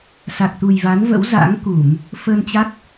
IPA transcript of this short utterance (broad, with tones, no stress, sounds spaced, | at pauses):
s a˨˩ k̚ t̪ u˨˩ j v a˨˦ n v ə̰˧˥ w z a̰˧˥ ŋ k u˧˩˨ m | f ə˧ n t͡ɕ a˦˥ k̚